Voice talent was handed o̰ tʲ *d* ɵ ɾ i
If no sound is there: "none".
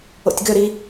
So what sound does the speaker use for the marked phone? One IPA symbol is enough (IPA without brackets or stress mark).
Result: ɡ